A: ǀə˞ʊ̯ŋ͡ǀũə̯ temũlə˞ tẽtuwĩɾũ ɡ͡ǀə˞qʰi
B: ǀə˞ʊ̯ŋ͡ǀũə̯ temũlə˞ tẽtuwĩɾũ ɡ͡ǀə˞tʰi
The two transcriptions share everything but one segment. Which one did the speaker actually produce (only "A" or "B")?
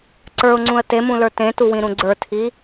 B